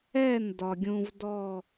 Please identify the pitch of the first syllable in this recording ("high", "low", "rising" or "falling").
falling